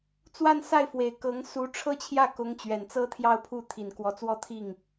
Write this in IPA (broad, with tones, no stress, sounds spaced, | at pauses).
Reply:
t͡s w a˥˧ n s a˥˩ ɪ̯ f w e˨˩ ɪ̯ k ɤ˧˥ ŋ s u˧˥ ʈ͡ʂʰ ɤ˥ t͡ɕʰ j ä˥˩ k ʊ˧˥ ŋ t͡ɕ ɥ ɛ˨˩ n t͡s ɤ˥ t̪ʰ j ɑ˥˧ ʊ̯ pʰ u˥˩ t̪ʰ i˨˩ n k w ɔ˧˥ t͡s w ɔ˥˧ t̪ʰ i˥˩ ŋ